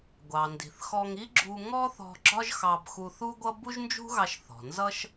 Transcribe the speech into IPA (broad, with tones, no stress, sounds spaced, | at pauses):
ɡʷ ɑ˩ n d i̤˩ θ x ɔ˧ ŋ i˥ ɡ͡ǁ u˧ ŋ ɔ˥ θ ɔ̤˧ ɡ͡ǁ ɒ˥ ʒ x ɑ˧ b x u˧ θ u˥ ɡʷ ʌ˥ b u˥ ʒ n d͡ʒ ṳ˥ ɣ ɑ˧ ʃ θ ɔ̤˩ n z ʌ˥ ʃ